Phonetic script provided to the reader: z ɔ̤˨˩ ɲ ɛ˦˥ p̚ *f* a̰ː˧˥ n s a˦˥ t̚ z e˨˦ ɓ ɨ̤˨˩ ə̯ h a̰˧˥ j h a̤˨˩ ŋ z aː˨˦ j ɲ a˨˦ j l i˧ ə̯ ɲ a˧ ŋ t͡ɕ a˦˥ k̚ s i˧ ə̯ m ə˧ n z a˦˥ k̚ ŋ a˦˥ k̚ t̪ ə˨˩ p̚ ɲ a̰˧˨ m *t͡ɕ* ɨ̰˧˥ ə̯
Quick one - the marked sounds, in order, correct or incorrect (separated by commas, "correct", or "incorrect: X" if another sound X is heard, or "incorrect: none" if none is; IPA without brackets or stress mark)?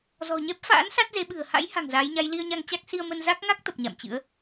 correct, correct